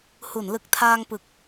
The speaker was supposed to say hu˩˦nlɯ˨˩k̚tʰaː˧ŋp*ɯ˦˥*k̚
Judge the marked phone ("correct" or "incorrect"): incorrect